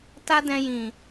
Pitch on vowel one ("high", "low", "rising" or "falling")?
high